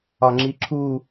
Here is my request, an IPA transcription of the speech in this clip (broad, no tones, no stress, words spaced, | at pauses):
ɒŋ͡ǁiǁʰu